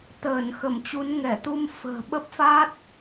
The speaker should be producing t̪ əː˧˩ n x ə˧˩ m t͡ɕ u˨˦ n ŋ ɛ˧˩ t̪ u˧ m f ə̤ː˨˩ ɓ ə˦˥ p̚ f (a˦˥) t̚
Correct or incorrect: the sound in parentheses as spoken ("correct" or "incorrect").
incorrect